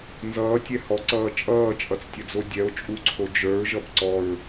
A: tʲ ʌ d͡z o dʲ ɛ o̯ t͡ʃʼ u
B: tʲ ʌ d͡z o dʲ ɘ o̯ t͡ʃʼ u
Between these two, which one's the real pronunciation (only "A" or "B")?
A